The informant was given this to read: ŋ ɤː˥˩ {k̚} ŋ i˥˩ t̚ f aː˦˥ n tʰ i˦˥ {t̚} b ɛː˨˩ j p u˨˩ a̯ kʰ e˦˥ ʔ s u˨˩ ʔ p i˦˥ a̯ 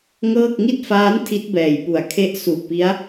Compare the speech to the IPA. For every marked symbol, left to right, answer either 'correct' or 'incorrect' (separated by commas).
correct, correct